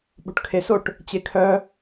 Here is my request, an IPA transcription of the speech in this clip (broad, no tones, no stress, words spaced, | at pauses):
ɓo̤ʈkʰesoʈ | t͡ɕekʰœ